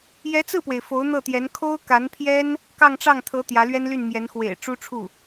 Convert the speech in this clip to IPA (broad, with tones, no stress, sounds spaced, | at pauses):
j ɛ˧˥ t͡s ɹ̩˥˩ p w e˩ ɪ̯ f o˧˥ ʊ̯ n̪ ɤ˥˩ t̪ j ɛ˧˥ n kʰ o˥ ʊ̯ k a˧˥ n pʰ j ɛ˥ n | k ɑ˥˧ ŋ ʈ͡ʂ ɑ˥˩ ŋ t̪ʰ ɤ˧˥ t̪ j ä˧˥ l ɥ ɛ˥ n l y˥˩ n m j ɛ˧˥ n x w ḛ˨˩ ɪ̯ ʈ͡ʂ u˥ ʈ͡ʂʰ u˥˩